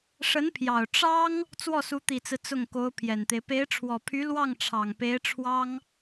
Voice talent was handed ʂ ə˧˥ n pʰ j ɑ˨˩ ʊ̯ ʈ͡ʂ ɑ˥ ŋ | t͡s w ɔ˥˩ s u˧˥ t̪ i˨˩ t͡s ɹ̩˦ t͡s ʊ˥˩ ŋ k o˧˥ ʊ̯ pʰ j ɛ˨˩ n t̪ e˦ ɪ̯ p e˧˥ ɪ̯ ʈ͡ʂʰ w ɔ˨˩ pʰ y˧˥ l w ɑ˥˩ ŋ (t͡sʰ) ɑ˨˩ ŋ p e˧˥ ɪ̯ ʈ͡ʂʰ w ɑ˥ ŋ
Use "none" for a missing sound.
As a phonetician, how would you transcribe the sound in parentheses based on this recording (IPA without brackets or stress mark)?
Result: ʈ͡ʂʰ